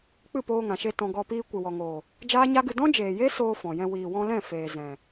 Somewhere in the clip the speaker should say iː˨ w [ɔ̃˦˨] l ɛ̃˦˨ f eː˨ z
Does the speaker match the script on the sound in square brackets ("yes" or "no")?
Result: no